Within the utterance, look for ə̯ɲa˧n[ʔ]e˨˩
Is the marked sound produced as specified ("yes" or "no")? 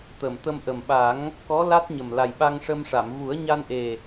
yes